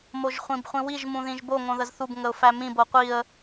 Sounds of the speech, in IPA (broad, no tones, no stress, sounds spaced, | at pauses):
m o ʒ χʷ ĩ b χʷ ĩ w i ʒ m ũ ð ĩ ʒ b o ŋ õ ð ə z θ u b ŋ ə ʊ̯ f æ m ĩ b o qʷ i ə̯